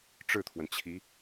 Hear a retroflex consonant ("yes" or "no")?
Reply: yes